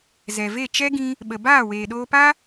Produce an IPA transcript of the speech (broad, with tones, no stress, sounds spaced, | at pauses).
z ɛ˨ v e˦˨ t͡ʃ ɛ˦ ɡ ĩ˧ | ɓ ə˨ b aː˦˨ w eː˨ ɗ oː˧ p a˦